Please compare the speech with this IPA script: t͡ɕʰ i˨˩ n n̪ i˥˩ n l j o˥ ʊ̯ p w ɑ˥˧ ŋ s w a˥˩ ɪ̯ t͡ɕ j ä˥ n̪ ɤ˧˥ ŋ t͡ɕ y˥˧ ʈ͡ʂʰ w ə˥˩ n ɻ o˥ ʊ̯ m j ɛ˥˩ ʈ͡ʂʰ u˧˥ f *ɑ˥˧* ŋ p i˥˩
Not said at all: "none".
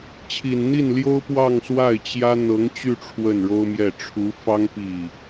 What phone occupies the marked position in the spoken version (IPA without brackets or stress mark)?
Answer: ɑ˥